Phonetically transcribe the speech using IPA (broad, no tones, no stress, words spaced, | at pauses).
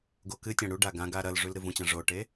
ɡokɨtʲã ɽuɖa ɡãɡa ɾɐlʐʉl ɾɨvũt͡ɕã ʐoʈe